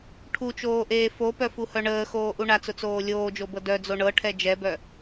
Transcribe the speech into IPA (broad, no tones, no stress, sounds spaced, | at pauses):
ʈʰ u t͡ʃ oː ʔ eː f o p œ f u h œ ɳ əː x oː ʔ u ɳ a t͡s ʊ t͡s oː lʲ oː d͡ʒ o b ɤ d œ d͡z o ɳ ɤ ʈʰ ɛ d͡ʒ ɛ b œ